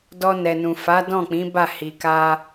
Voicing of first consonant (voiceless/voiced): voiced